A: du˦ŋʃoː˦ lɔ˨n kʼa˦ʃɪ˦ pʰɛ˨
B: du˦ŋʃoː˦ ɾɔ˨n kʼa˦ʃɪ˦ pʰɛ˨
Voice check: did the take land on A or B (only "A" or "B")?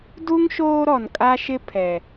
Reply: B